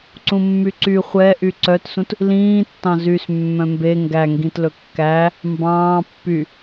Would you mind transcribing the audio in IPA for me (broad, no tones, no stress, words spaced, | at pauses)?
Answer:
ǀũmːyǀy χʷɛ ʔyǀœtsũt | lĩːtːɑ̃ zys mːœ̃mbe ŋɡæŋɡĩtlɵ kːæ | mbɑ̃ː pːy